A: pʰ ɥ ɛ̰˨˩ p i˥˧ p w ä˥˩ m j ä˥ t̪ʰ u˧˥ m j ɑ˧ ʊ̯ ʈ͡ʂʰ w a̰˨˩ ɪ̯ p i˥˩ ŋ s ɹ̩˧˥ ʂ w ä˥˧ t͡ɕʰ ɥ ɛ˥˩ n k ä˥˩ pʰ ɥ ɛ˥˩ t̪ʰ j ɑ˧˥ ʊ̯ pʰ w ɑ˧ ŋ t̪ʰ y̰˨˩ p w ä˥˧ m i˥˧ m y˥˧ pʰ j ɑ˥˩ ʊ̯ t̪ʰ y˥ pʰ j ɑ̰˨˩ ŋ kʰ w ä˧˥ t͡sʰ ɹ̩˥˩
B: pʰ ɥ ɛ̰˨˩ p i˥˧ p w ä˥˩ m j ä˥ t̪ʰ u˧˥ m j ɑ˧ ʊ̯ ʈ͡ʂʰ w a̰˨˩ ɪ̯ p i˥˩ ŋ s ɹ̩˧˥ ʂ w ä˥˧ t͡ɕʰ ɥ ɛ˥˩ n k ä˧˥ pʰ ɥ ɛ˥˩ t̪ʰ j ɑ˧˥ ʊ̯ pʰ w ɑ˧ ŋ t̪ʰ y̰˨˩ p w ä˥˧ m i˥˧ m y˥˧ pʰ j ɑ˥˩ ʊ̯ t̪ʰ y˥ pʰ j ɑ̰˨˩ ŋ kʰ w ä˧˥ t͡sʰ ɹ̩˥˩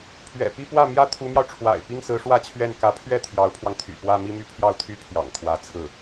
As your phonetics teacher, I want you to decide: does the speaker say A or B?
B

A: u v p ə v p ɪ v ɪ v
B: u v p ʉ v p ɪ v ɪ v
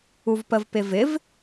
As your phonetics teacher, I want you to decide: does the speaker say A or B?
A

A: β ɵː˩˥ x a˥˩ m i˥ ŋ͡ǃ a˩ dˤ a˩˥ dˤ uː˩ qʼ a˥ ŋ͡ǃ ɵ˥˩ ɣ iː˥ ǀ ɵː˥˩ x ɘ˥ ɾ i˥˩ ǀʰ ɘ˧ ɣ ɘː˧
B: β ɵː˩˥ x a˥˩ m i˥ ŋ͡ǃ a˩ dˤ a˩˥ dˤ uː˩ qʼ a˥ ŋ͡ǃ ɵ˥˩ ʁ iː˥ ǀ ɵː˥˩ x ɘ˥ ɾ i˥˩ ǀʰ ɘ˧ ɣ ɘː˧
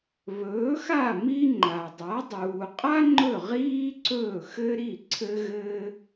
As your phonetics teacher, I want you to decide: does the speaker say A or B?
B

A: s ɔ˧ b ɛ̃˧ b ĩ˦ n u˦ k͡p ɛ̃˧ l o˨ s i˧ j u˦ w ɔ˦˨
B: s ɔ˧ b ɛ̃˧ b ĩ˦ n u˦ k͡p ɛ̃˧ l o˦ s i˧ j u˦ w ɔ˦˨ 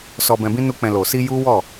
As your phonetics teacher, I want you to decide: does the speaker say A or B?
A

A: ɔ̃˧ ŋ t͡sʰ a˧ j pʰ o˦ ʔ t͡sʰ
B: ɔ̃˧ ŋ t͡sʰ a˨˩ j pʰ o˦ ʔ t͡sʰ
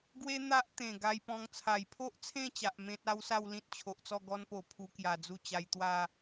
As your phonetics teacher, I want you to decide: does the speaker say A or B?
B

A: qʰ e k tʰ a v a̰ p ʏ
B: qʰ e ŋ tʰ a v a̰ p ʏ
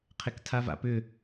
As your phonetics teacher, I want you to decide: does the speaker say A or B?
A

